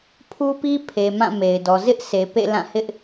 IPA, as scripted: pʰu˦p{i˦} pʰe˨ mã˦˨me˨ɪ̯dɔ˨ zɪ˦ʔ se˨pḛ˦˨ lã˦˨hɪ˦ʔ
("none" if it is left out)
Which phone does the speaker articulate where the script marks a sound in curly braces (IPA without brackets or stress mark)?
i˦